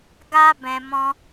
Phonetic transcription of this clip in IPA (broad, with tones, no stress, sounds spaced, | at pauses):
ɡ a˦ b ɛ̃˧ m ɔ̃˦